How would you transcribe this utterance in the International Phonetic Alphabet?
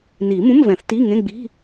n iː˨˩˦ m ũ˧˥˧ m v ɛ̃˨˩˦ θ t iː˧˥˧ ŋ ẽ˧˥˧ ɡ͡b i̤˧˥˧

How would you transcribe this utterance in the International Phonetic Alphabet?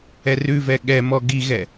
ɛ r ʉ v ɛ ɠ ɛ m ɔ ɡ i ɣ ɛ

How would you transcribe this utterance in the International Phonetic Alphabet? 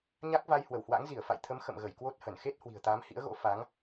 ɲ a˦˥ k̚ v a˧ j h w ə˧˩ w h w a̰˧˥ ŋ z i˧˩ ə̯ f a̰˧˨ j t̪ʰ ə˨˦ m x ə̰˧˨ m ɣ ə˧˩ j k w o˦˥ t̚ h ə˧˩ n x e˦˥ t̚ h w i̤˨˩ ə̯ t̪ aː˨˦ m h ḭ˧˥ ə̯ ɣ o̰˧˥ f a˨˦ ŋ

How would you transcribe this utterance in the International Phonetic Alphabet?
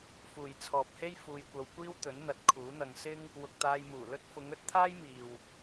f uː˨ j t͡sʰ ɔː˨ p̚ h e˥ j f uː˧ j kʷ ɐ˧ w kʷ iː˥ w t̪ ɵ˨˥ n n̪ ɐ˨˥ t̚ kʰ uː˨˥ n̪ ɐ˧ ŋ s ɪ˥ ŋ | w ʊ˨ k̚ t̪ aː˧ j m uː˨˩ l ɵ˥ t̚ f ʊ˨˧ ŋ ɵ˨˥ t̚ t̪ʰ aː˥ j m iː˨ w

